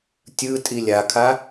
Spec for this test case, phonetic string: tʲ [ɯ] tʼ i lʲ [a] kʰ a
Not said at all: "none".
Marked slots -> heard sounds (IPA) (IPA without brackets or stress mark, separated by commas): ɯ, a